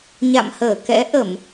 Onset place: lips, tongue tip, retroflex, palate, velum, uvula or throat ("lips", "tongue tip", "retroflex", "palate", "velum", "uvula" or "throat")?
palate